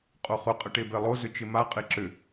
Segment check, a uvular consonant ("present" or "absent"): present